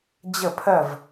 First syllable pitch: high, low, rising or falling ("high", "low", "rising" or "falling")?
falling